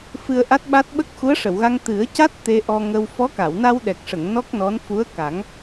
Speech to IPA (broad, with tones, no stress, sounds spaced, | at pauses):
f ɨ˧ ə̯ ʔ a˦˥ t̚ ɓ a˦˥ t̚ ɓ ə˦˥ k̚ x u˧˥ ə̯ ʂ ə˨˩˨ w ɣ a˧ ŋ t̪ ɨ˨˩˦ ə̯ c a˦˥ t̚ t̪ e˧ ʔ ɔ˧ ŋ ə˧ w f ɔ˧˥ k a˨˩˨ w n a˧ w ɗ ɛ˨˩ k̚ ʂ ə˨˩˨ ŋ n ɔ˦˥ k̚ n ɔ˧˥ n f u˧˥ ə̯ k a˨˩˦ ŋ